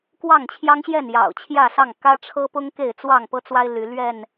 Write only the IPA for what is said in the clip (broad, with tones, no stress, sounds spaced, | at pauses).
k w ɑ˥˨ ŋ t͡ɕʰ j ɑ˦ ŋ ɕ j ɛ˥˨ n j ɑ̰˨˩ ʊ̯ t͡ɕʰ j ä˥˨ s ɑ˥˨ ŋ k ä˦ ʈ͡ʂʰ ɤ˦ p ʊ˦ ŋ k e˥˨ ɪ̯ t͡s w ɑ˥˨ ŋ p ɤ˦ t͡s w a˦ ɪ̯ l y˨˦ l ɥ ɛ˥˨ n